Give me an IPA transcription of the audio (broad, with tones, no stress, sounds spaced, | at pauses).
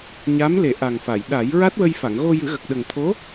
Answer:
ɲ a˧˥ m l e˨˩˦ ʔ a˨˩ ŋ f a˨˩˨ j ɗ a˨˩˦ j ɹ a˦˥ t̚ w ə˧ j f a˨˩˨ ŋ ɣ o˧ j ɨ˨˩˦ ɣ ə˨˩ k̚ ɗ ə˨˩ ŋ t̪ʰ o˧˥